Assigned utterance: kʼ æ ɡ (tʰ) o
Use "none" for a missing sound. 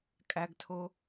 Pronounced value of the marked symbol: tʰ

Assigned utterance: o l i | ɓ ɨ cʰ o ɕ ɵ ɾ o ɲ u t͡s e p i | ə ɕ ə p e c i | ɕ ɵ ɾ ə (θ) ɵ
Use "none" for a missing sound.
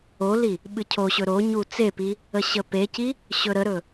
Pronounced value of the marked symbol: ɾ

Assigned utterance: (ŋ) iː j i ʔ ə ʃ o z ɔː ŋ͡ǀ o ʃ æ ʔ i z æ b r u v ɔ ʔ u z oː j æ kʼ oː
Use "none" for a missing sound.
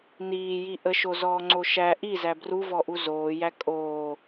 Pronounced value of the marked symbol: n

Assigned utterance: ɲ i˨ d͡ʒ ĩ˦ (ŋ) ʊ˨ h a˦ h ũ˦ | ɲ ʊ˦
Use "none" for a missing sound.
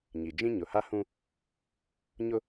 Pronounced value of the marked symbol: ɲ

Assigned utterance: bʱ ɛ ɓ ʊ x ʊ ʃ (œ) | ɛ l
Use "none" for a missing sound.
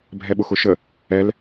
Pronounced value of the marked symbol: ə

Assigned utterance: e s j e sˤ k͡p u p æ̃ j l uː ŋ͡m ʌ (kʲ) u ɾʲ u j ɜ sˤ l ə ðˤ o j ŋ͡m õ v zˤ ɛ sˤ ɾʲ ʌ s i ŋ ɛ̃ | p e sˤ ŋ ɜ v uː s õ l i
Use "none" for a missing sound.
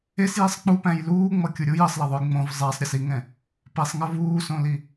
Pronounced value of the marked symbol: kʲ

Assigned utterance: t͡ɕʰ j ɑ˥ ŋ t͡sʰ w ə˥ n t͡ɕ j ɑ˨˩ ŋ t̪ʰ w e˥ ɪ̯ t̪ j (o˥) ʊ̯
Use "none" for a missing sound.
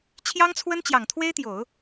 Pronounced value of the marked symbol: o˨˩˦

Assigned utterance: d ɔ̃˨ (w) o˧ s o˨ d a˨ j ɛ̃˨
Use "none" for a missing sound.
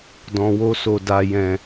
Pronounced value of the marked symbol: w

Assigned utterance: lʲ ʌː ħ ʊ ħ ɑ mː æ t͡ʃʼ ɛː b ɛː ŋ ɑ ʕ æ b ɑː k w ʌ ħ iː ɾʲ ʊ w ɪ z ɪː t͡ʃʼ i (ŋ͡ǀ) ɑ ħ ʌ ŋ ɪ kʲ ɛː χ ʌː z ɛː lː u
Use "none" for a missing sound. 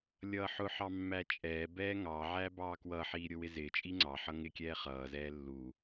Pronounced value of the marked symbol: ŋ͡ǀ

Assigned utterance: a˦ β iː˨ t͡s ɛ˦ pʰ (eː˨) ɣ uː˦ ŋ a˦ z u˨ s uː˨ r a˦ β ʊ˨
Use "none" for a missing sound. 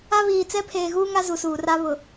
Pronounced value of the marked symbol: eː˨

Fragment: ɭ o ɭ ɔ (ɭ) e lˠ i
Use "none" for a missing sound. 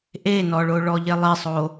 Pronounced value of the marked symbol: ʎ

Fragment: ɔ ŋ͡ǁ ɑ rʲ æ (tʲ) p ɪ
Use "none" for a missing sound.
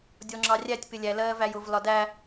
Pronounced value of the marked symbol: tʲ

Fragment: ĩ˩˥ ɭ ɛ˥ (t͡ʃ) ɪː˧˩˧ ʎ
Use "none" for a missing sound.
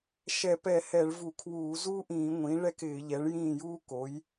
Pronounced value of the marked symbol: k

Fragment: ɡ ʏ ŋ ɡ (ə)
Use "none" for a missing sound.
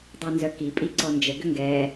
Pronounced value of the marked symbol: ɛ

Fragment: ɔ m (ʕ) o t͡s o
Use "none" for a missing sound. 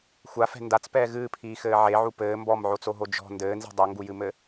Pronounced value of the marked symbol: ʕ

